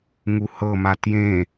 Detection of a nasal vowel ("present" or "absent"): present